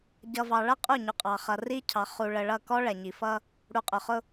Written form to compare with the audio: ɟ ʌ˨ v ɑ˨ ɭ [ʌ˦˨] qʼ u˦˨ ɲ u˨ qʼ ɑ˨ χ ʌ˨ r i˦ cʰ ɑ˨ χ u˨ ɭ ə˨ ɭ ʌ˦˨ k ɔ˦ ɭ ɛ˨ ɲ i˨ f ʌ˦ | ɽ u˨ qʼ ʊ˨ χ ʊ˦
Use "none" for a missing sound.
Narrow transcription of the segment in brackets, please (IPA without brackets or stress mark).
ʌ˦˨